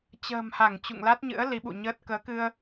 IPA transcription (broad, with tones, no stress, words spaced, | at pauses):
t͡ɕə̤ː˨˩mha˧˩ŋ t͡ɕṵ˧˨ŋla˦˥t̚ɲɨ̰˧˥ə̯ li˨˦ɓṵ˧˨ɲəː˦˥t̚ kəː˨˦kɨ˧ə̯